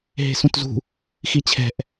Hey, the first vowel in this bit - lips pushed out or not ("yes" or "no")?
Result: no